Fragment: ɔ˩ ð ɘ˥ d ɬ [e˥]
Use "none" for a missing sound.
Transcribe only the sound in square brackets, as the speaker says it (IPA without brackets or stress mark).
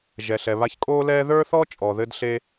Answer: e˥